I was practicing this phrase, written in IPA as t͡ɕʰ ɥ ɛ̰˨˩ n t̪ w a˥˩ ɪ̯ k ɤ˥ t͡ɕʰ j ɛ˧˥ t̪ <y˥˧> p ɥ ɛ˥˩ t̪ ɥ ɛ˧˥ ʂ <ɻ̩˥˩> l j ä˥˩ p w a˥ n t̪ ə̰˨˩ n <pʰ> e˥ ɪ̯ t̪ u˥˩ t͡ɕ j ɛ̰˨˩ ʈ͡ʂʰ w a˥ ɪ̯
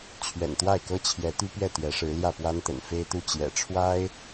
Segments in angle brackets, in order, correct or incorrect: incorrect: y˥, incorrect: ɻ̩˧˥, incorrect: f

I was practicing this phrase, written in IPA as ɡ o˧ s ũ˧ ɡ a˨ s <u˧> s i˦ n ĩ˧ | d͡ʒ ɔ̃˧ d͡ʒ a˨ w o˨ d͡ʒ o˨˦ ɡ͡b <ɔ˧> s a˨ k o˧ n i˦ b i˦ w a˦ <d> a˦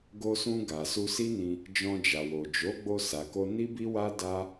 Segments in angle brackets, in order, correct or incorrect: correct, incorrect: o˧, correct

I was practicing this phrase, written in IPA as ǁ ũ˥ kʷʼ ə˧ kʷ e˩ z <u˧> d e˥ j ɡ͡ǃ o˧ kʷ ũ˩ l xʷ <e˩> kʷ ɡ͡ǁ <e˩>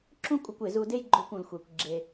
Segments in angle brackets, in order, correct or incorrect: correct, correct, correct

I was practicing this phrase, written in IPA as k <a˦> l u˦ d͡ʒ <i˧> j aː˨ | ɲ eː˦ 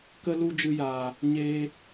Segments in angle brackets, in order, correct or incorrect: incorrect: ə˦, incorrect: ɨ˧

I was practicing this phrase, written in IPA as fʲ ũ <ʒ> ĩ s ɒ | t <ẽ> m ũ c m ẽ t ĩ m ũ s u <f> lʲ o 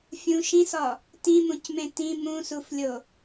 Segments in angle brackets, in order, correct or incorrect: incorrect: ʃ, incorrect: ĩ, correct

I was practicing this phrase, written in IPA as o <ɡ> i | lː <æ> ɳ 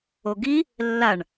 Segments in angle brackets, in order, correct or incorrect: correct, incorrect: a

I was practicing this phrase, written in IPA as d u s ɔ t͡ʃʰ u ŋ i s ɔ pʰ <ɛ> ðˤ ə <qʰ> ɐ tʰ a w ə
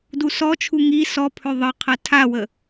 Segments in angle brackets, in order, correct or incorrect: incorrect: ø, correct

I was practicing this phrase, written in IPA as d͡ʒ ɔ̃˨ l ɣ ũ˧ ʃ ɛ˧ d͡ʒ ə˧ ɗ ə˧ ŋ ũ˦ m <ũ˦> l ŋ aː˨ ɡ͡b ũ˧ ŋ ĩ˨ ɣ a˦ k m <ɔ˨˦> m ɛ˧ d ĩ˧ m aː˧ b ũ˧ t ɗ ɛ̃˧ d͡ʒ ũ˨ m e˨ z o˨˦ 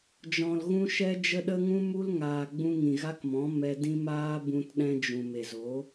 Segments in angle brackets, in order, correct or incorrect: incorrect: u˦, incorrect: ɔ̃˨˦

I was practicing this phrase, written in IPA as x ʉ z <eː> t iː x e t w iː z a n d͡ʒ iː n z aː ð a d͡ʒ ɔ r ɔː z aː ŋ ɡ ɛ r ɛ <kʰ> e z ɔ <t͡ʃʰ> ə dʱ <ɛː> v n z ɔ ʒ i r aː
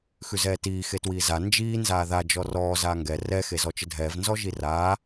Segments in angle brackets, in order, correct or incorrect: incorrect: ɛː, incorrect: x, incorrect: t͡ʃ, correct

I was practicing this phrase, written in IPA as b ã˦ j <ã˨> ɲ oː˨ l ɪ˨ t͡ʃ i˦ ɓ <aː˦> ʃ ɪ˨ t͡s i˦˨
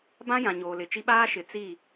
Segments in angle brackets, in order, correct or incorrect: correct, correct

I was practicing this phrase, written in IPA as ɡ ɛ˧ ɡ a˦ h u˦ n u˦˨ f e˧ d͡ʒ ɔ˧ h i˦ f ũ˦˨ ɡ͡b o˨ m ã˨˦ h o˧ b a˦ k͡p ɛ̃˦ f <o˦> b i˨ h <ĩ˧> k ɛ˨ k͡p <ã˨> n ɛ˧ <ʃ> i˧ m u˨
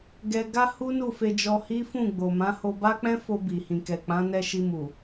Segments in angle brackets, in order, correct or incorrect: incorrect: o˧, incorrect: ĩ˨, incorrect: ã˨˦, correct

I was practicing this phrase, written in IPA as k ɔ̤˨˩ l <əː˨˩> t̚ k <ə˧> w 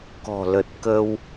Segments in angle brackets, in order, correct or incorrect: incorrect: ə˨˩, correct

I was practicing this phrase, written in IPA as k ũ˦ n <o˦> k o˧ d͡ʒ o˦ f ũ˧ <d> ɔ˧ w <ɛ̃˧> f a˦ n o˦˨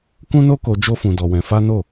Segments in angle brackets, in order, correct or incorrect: correct, correct, correct

